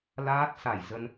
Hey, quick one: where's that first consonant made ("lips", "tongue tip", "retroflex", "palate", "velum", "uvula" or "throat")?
tongue tip